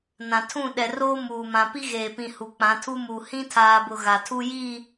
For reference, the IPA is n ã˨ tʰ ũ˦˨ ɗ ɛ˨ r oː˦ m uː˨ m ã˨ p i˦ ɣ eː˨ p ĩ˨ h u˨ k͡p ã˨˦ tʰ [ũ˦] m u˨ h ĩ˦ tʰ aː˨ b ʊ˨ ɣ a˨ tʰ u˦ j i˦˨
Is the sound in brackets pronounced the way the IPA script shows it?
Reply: no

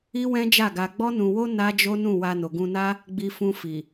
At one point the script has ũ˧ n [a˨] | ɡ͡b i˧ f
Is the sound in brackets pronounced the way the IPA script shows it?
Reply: no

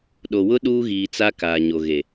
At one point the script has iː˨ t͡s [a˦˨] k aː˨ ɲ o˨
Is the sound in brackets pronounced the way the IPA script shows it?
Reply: no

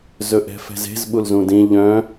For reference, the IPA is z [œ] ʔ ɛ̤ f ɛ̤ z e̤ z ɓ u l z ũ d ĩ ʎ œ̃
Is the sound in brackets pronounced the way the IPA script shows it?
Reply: no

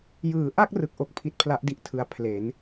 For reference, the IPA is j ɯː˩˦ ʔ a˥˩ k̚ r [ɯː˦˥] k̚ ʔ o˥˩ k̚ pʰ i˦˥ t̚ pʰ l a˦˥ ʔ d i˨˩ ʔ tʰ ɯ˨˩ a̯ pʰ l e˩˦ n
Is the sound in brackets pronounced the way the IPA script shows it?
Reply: no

